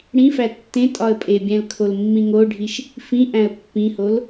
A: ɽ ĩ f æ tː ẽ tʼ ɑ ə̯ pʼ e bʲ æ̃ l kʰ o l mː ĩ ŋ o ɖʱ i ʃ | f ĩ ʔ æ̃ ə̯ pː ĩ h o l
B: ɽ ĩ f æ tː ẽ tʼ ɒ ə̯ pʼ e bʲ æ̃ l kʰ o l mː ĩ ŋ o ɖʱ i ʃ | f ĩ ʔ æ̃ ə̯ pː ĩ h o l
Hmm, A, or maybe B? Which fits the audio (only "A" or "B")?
B